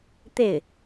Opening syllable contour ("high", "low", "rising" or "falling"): falling